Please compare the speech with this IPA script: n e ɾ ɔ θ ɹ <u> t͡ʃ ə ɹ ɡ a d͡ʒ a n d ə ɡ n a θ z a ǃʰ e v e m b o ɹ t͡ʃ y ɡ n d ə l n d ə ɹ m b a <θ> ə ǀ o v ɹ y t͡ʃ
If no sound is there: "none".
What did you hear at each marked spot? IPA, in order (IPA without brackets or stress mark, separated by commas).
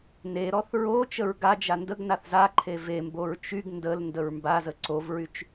o, z